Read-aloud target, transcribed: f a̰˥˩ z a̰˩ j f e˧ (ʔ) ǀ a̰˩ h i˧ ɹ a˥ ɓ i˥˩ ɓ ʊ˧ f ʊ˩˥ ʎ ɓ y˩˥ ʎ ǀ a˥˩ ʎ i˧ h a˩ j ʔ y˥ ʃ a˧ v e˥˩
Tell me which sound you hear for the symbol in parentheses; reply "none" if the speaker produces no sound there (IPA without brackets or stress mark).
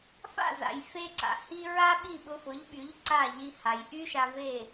none